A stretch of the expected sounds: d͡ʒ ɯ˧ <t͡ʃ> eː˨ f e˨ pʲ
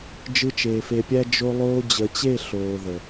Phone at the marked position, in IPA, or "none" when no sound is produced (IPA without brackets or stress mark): t͡ʃ